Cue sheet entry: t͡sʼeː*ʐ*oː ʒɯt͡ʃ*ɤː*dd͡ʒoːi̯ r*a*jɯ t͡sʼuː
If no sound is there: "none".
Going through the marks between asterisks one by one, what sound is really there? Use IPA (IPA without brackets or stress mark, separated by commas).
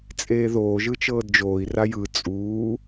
ð, ɤː, a